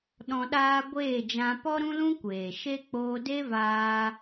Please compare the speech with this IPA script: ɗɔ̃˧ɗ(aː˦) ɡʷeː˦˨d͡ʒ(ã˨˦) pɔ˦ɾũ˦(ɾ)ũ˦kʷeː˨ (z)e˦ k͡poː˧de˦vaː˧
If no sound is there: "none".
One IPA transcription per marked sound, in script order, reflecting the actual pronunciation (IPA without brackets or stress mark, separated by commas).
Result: aː˦, ã˧, l, ʃ